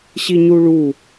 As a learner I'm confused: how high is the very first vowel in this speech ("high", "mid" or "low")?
high